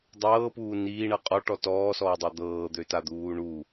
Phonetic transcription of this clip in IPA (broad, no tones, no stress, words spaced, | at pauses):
dˤɤːpuː niːɳɤ qʼɔʈɔ tɔːsɔːdˤa d̪ɤːd̪øtad̪uː ɳu